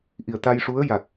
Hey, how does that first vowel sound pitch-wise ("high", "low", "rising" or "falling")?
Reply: low